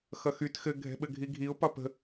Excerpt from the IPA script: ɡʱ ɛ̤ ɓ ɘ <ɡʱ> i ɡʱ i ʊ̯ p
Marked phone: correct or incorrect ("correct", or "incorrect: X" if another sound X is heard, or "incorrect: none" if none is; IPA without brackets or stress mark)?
correct